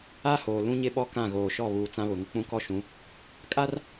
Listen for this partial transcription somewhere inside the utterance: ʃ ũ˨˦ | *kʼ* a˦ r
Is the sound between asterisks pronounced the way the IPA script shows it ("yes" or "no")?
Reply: yes